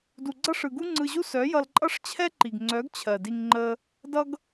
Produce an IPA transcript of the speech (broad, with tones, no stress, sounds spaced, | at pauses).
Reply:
d u˨ ɡ͡ǀ ʌ˦ ʂ ɯ˨ ɡ u˦ ŋ͡ǀ ɯ˧ ʑ u˦ s œ˨˦ j ʌ˧ l ǃʼ ʌ˦ ʂ t͡ɕʰ ɛ˦ ǃ i˨ ɡ ŋ͡ǀ œ˨˦ ɡ t͡ɕʰ ɜ˨ d i˧ ŋ ŋ͡ǃ ə˦ | d ʌ˦ ɡ